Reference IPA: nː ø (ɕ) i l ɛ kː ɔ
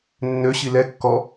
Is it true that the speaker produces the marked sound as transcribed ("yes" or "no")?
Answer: yes